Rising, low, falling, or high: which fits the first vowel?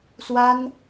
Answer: high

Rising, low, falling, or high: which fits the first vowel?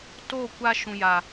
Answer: falling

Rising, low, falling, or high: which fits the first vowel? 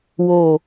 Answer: low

